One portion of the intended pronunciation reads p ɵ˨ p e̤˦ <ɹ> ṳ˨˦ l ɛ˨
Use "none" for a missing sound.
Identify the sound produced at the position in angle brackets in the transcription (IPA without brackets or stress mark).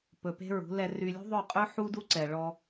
ɹ